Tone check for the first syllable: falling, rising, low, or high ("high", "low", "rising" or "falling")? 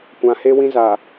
low